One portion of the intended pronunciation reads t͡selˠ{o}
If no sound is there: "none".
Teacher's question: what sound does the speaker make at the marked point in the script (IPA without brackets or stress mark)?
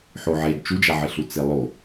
o